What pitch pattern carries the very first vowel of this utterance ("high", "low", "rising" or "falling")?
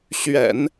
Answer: low